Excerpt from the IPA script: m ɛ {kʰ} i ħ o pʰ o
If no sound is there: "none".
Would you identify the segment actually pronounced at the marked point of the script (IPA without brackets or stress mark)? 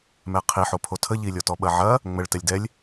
qʰ